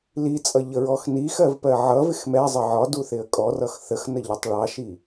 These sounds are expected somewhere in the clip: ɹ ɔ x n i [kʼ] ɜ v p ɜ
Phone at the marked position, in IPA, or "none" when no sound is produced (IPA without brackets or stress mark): x